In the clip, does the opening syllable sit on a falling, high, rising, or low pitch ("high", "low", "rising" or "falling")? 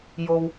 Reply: low